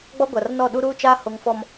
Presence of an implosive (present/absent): present